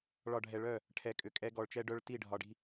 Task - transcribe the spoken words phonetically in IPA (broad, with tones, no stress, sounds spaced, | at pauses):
ɭ ɒ˨ ɖʱ ɛ˨ ɭ œ˦˨ | ʈʰ ɛ˨˦ kʼ ʏ˨ kʼ ɛ˦ ɡ ɔ˨ ɭ t͡ʃ ɛ˦ ɖ œ˦ ɭ t i˦˨ ɖʱ ɒ˨ ɖ i̤˦